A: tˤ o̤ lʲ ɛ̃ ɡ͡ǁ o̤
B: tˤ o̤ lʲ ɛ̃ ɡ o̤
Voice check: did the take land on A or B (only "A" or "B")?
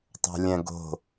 B